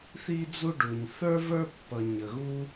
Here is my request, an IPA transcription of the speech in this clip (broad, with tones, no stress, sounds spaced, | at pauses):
θ i˥ d͡z u˥ ɖ u˧ ɲ θ ə˞˥ v ə˞˥ pː ʌ˧ ɲ ə˧ ɣ u˥